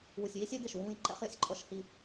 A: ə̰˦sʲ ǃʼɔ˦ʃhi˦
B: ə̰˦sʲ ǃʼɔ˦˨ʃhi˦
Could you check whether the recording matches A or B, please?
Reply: A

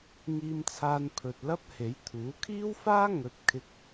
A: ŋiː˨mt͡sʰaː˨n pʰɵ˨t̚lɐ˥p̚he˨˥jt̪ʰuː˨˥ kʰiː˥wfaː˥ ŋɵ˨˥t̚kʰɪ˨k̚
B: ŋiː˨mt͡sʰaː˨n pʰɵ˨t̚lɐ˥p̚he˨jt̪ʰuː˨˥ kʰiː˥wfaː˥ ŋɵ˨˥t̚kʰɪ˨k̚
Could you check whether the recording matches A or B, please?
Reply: A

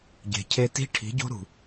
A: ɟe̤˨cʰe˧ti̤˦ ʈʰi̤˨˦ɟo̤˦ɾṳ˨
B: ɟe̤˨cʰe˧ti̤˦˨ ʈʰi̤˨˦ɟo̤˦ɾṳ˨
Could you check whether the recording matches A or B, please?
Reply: A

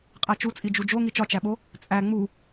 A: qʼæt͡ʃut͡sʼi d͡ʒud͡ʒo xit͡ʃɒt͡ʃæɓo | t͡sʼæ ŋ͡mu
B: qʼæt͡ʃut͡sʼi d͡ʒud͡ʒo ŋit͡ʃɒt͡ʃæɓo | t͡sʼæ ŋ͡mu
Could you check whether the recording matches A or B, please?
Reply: B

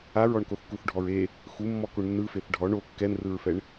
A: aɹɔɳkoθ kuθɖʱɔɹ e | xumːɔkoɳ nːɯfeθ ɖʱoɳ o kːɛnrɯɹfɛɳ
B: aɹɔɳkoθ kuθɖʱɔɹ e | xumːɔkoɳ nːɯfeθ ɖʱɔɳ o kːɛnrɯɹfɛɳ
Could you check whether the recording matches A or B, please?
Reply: B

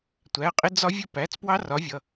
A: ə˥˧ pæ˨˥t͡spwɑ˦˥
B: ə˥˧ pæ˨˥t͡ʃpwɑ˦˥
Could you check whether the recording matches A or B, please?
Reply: A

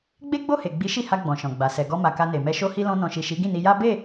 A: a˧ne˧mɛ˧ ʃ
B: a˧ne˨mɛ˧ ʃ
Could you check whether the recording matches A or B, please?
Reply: B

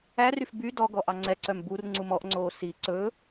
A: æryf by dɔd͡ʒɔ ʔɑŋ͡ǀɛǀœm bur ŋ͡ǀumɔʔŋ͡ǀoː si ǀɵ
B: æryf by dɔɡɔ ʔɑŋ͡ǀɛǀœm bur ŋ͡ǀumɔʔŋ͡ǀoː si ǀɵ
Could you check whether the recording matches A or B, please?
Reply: B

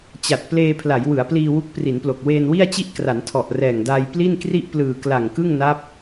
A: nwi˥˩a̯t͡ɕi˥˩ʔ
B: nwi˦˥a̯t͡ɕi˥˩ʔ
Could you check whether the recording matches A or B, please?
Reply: A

